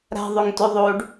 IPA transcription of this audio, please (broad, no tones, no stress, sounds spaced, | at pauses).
ɾ a̤ ðˤ ø ŋ t ø ðˤ o ɖ